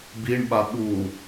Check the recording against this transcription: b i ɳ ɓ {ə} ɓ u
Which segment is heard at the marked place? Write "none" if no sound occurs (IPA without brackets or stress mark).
a